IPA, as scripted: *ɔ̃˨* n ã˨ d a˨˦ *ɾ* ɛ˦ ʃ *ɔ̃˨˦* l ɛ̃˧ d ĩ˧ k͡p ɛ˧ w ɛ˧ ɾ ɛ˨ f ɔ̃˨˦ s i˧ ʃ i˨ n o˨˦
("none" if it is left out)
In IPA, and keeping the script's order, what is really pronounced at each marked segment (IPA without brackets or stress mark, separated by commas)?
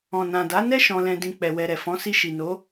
ɔ̃˨, n, ɔ̃˧